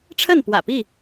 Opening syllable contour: falling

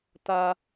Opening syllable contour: high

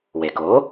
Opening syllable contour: low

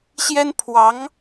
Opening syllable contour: high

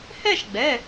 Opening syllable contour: falling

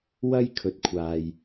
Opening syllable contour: high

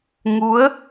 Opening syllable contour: rising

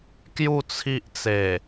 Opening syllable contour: falling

